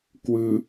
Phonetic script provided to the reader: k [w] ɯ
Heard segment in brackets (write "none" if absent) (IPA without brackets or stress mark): w